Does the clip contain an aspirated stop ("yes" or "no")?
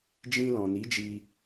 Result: no